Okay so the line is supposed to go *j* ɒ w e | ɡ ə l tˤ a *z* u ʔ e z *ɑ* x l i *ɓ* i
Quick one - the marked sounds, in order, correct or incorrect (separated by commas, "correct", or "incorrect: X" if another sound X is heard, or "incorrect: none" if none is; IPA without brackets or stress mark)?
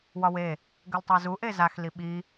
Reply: incorrect: w, correct, incorrect: a, correct